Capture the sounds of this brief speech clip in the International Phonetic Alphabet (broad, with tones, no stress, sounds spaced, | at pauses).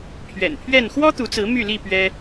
pʰ ɥ ɛ̰˨˩ n pʰ ɥ ɛ˥˨ n x w ɔ˦ t̪ u˨˦ t͡s ɹ̩˨˦ m y˥˨ l i˥˨ p ɥ ɛ˦